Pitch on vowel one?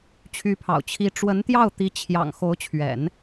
rising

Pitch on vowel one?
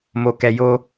low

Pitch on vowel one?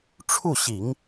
falling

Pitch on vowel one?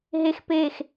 falling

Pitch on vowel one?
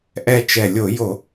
falling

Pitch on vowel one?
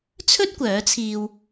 high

